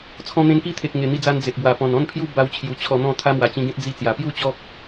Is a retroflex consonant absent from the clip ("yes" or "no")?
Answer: yes